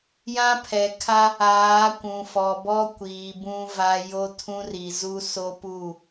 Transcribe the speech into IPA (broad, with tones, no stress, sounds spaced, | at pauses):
j ã˦ pʰ ɛ˨ kʰ a˦ | aː˨˦ kʷ ũ˨ f ɔ˨ b ɔ˦ kʷ iː˨ b ũ˦ v a˦ j o˦ tʰ ũ˦ r i˨ z u˦ s o˦ p u˦˨